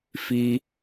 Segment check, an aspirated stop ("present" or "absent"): absent